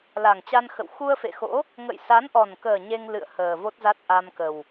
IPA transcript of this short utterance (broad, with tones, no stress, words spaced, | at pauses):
la˨˩ŋt͡ɕa˧nxə̰˧˨w xu˧ə̯fḛ˧˨xo̰˧˥ | ŋə̰˧˨jsa˨˦nʔɔ˨˩nkəː˨˩ ɲe˧ŋ lɨ̰˧˨ə̯ həː˨˩vo˦˥t̚za˦˥t̚ ʔa˧mkə˨˩w